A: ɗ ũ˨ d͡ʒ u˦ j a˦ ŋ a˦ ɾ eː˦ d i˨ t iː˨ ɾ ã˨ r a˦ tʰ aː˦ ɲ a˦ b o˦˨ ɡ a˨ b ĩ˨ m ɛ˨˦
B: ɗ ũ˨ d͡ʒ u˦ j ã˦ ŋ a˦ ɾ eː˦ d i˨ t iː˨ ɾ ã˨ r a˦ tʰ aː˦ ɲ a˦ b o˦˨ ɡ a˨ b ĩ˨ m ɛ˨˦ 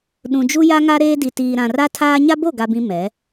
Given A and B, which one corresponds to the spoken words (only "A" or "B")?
A